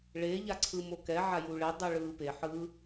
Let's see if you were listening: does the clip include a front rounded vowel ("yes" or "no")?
no